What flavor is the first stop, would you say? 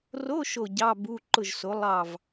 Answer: plain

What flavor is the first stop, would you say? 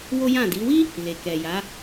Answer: plain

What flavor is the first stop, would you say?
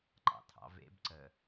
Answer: click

